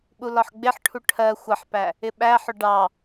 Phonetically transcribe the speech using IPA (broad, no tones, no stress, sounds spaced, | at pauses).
ɓ u l ɒ ħ ɡ͡b ɪ ħ ʈʰ u ʈʰ ɜ xʷ ʌ ħ p æ | ɪ ɓ æ ħ ʊ ɖ ɑ